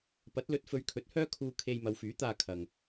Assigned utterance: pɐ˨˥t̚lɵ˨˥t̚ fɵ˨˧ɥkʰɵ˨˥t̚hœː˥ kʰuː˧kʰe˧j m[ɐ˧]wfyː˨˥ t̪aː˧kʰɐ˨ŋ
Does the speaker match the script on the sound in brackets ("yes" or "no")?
no